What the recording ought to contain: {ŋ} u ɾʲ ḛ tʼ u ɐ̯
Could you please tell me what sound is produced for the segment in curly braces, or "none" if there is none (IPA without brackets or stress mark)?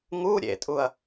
ŋ